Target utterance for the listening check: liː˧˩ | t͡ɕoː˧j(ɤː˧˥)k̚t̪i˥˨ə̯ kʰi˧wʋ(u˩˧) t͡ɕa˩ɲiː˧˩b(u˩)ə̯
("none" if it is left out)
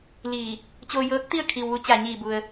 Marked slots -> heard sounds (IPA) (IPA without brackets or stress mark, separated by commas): ɤː˧˥, u˧˥, u˩